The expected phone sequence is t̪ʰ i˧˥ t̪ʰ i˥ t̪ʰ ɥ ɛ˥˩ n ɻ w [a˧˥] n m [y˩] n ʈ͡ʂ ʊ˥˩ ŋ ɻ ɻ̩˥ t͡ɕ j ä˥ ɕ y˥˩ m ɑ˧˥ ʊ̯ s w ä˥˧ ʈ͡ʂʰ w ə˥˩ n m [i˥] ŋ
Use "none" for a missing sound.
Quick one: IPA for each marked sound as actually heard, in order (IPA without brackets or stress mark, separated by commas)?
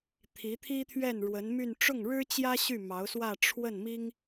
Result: ə˧˥, y˥˧, i˥